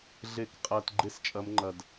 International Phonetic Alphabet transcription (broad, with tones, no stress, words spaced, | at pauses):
ɮe˨˩˦kqʼɐː˨t ɡ͡ǃe˥˧st͡ʃʼɐ˧˥mŋ͡ǃɐ˨d